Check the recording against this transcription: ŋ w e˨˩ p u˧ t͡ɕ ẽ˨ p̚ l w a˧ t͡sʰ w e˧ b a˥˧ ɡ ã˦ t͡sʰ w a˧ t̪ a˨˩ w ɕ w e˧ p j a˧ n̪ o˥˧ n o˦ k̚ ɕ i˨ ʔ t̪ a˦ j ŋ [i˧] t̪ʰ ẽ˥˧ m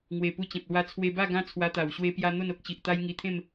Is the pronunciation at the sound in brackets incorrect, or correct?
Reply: correct